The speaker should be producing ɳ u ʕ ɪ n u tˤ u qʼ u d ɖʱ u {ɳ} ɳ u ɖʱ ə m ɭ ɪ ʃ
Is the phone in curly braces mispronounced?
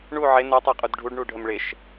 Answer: yes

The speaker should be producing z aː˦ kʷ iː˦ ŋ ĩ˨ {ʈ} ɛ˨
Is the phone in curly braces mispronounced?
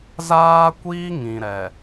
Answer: yes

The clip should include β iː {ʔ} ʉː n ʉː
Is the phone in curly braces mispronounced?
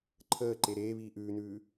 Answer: no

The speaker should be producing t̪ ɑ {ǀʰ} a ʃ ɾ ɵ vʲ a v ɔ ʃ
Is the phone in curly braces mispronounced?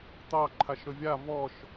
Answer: yes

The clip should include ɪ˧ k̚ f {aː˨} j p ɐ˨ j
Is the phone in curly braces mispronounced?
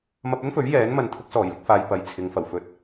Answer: no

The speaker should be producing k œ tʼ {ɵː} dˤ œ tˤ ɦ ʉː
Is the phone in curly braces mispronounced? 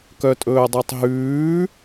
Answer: no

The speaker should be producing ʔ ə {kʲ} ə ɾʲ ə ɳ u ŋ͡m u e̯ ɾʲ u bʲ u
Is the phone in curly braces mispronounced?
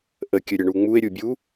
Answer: no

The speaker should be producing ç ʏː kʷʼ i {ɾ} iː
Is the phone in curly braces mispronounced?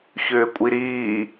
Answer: no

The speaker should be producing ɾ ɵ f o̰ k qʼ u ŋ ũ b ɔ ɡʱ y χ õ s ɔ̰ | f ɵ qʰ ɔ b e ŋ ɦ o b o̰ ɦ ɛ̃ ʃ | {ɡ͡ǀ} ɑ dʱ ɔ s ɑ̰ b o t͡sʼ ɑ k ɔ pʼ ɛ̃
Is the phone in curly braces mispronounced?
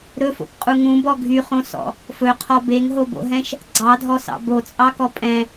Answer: no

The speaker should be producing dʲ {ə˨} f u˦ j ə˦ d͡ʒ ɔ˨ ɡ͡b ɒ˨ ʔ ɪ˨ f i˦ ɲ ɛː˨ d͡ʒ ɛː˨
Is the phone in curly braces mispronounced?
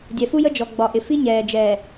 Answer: yes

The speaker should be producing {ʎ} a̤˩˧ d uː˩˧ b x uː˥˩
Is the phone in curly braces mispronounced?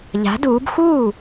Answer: no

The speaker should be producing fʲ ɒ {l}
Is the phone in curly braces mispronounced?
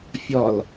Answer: no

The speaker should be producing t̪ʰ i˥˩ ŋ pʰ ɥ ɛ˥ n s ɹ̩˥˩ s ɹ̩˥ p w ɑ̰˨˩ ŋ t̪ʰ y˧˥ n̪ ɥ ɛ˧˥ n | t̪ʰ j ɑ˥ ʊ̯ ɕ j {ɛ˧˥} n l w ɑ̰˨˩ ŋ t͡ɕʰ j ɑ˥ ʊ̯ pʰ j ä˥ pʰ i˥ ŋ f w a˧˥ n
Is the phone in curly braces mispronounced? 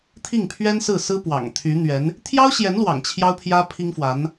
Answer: no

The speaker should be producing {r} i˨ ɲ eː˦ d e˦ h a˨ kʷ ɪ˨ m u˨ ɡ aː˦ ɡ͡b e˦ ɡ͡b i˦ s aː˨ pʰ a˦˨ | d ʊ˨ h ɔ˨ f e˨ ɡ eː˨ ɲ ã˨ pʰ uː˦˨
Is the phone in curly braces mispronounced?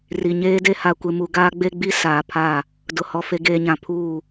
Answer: no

